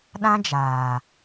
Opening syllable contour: high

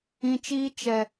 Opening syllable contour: low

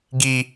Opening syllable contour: high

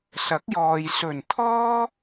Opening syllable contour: rising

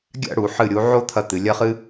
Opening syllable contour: falling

